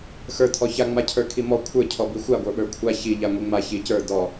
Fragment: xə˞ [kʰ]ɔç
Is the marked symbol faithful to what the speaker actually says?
no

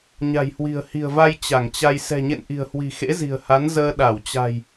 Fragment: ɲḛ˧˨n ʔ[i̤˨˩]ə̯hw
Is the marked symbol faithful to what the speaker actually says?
yes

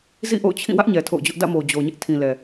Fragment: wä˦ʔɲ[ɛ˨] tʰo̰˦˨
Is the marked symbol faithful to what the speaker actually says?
yes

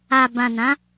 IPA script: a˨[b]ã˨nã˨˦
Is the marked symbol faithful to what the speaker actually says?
yes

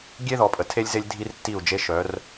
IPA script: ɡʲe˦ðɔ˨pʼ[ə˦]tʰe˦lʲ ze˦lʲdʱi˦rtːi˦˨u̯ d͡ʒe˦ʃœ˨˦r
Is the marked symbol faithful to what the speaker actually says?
no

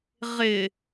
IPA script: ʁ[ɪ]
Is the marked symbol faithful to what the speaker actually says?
yes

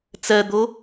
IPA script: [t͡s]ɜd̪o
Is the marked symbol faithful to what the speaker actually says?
yes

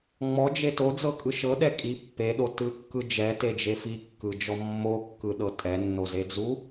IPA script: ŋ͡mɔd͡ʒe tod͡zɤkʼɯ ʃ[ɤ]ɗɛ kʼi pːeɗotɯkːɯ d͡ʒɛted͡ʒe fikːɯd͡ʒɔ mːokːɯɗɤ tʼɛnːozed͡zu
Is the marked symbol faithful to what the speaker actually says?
yes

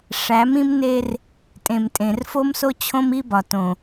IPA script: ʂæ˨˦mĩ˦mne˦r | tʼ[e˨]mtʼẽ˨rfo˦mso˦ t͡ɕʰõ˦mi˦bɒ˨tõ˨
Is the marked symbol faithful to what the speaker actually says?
no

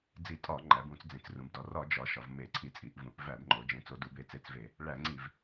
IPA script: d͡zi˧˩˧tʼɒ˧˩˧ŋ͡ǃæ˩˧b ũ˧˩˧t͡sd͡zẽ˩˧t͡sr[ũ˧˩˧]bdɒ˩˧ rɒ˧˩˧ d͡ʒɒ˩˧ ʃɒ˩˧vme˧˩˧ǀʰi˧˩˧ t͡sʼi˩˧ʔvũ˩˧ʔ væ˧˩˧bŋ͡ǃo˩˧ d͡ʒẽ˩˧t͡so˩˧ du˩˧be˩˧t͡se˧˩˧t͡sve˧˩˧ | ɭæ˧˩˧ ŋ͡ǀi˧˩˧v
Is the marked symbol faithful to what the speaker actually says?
no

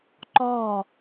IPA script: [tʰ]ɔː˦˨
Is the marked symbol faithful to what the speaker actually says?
no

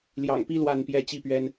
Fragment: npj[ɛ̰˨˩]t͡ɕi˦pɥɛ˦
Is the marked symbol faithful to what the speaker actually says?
no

